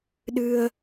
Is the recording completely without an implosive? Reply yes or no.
no